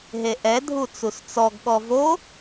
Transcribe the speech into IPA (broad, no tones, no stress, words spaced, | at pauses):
ɦeʔɛ dʱut͡sust͡sɔɡ ɠɔvo